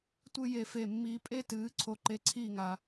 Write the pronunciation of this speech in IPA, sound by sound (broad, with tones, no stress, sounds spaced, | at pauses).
tʷ ɨ˥˨ j e˧˩ f e˧˩ mː iː˨˦ pʼ e˥˨ t ɨː˨˦ ǀʰ o˨˦ ǃ e˨˦ ǀʰ iː˥˨ ŋ a˨˦